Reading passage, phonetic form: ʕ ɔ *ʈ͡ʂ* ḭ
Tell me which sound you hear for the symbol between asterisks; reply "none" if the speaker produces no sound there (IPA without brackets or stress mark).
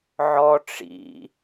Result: ʈ͡ʂ